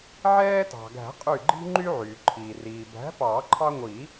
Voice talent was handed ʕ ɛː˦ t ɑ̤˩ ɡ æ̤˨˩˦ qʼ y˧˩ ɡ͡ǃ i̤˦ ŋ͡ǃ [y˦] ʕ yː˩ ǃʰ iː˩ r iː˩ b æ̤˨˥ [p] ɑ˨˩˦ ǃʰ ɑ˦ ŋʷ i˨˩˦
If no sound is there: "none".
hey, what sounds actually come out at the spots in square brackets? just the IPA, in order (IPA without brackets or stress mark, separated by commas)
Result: y˦, p